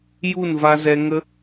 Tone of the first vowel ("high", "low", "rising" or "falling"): falling